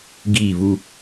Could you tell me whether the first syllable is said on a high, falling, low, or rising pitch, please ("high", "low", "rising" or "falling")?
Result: falling